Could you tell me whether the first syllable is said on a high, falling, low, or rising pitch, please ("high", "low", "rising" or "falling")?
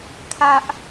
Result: high